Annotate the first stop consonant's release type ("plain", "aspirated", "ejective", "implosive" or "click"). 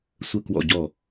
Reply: plain